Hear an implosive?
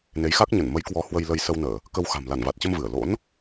no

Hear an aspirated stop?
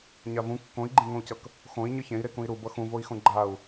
no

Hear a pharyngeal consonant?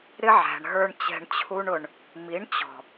yes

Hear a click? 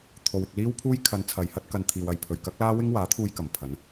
no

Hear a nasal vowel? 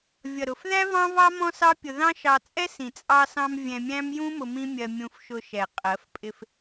yes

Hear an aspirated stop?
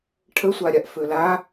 yes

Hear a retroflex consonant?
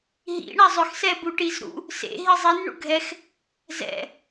yes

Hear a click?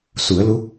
no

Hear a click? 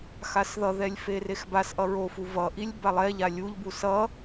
no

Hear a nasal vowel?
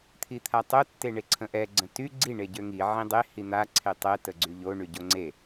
yes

